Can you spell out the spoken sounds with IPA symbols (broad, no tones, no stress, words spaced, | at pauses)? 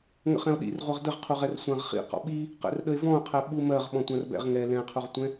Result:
ŋə̰χɛ̃o̯ɗḭr ʁʷɜʁdəʁqʰuʁɛr sʷãʁχḭ qɔ̰ɓi | qɛ̰rɗəe̯vɔ̃o̯qʰɛ ɓumɜʁ ɓɔ̃tʷãrbɛ̰ʁ ŋɛ lɛ̃qʰuʁtʷɛ̃